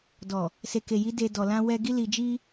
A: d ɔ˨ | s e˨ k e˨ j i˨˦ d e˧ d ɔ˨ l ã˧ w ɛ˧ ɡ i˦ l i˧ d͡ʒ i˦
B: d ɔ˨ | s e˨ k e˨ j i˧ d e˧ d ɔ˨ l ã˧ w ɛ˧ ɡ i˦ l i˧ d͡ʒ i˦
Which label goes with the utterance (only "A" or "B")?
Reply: A